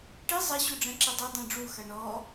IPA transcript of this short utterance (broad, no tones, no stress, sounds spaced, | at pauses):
ʈ i zˤ ɐ ɕ u ɖ͡ʐ ɛ̃ ǁ ɛ dˤ ɛ dˤ ẽ ɖ͡ʐ u x ɐ ɳ ɔ